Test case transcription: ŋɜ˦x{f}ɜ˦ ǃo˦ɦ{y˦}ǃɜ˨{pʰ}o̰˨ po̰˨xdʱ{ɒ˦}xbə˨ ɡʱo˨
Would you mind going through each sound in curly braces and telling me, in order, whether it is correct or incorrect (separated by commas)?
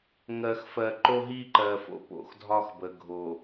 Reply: correct, incorrect, incorrect, correct